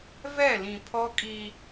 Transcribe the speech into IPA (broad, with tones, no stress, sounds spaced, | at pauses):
v ɛ˦˨ l ĩ˨ pʰ ɔ˦ kʼ i˦